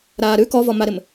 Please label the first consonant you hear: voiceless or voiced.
voiced